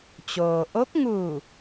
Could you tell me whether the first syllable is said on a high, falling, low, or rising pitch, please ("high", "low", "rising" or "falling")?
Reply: low